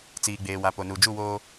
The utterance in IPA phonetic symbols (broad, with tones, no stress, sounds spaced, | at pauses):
t͡s iː˨ ɡ͡b eː˨ w a˨ p o˨ n u˨ d͡ʒ u˦˨ w oː˦